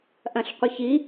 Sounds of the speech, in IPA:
ʔ ɐ̃ ɬ qʷ ɨ ç i

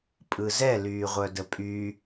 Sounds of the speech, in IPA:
pʼ ɯ z ɛ l yː ʁʷ œ d ə pʼ y

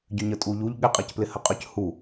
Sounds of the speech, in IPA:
ɟ ʏ ɲ ə tʼ u ʎ u ʎ ɠ ɪ qʼ ɛ c p l ɪ h ə qʼ ʏ c h u

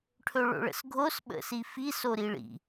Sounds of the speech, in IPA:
ʈʰ ɵ ɭ o̰ ɭ ə̰ s ɡʱ o s ɓ ə̰ s i f i s o ɾ i ɭ ḭ

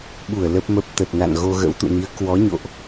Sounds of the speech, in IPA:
ɓ u˧˩ ə̯ l ə˦˥ p̚ m ə˦˥ p̚ t̪ ə˨˩ t̚ n a̰˧˨ n ɣ o˧ ɣ ə̰˧˥ w t̪ ṵ˧˨ n i˨˦ ə̯ k w ɔ˨˦ ɲ o̰˧˨ ʔ

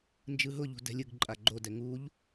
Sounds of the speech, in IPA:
n d͡ʒ ɯ ɦ ʊ ʎ ṳ d ɛ̤ lʲ ɯ ɡ ǃʼ a ɡ͡ǃ o d ɛ ŋ u ʎ

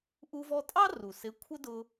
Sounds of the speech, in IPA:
ʔ u˧ v ɔ˧ tʼ ɑ˥ r u˩ s ɪ˧˥ kʷʰ ə˥ d ʊ˧

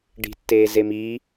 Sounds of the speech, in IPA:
ɖ i̤ tː eː z e m i

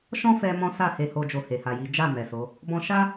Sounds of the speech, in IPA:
ʃ ɔ̃˦ f ɛ˧ m ɔ̃˦ s a˦˨ h e˧ h o˧ d͡ʒ o˧ h e˨ h a˨ j i˨˦ d͡ʒ a˦˨ m ɛ˨ s o˨˦ | b ɔ̃˧ ʃ a˦

